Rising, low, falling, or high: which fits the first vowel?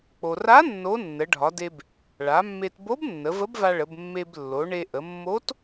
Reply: low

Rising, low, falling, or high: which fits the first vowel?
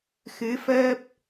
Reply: rising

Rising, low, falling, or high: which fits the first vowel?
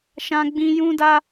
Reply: high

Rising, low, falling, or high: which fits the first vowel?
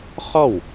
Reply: falling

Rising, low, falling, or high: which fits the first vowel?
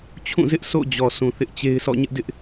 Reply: falling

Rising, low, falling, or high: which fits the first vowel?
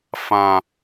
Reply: high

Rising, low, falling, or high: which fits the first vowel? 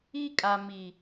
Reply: high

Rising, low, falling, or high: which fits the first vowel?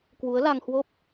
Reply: rising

